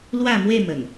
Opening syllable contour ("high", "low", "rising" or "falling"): falling